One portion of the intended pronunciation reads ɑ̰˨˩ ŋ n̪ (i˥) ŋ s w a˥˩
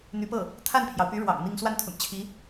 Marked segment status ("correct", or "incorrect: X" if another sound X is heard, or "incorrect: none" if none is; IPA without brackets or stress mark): incorrect: i˥˧